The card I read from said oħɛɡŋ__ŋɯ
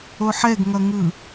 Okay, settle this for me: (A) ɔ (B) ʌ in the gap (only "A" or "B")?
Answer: B